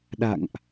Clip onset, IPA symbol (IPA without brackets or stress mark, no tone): ɗ